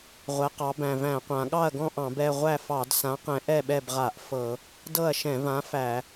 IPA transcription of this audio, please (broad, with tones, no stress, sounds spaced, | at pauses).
ʁʷ ɛ˩˧ q ɑ˩˧ b æ̃˨˩ v æ̃˧˩˧ qʷ ã˩˧ ɠ ɑ˥˨ ɐ̯ ɡ ɔ̃˥˨ ʔ ɑ̃˧˩˧ b ɛ˥˨ ʁʷ æ˥˨ f ɑ˧˩˧ d s ã˨˥ q ɛ̃˨˥ ʔ ɛ˥˨ ɓ ɛ˥˨ b ʁ a˧˩˧ ʔ f ɤ˧˩˧ | d ɤ˥˨ ɐ̯ ʃ ɛ̃˧˩˧ v ã˨˥ f æ˧˩˧